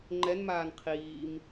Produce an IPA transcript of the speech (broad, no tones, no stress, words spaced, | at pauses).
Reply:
ŋ͡ǃɛnmaːn qʰiːm